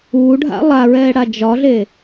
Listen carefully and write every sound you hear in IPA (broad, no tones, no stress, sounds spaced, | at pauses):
uː ɖʱ a̰ lˠ a ɹ ɛː ɽ a d͡ʒ ɒ ɮ eː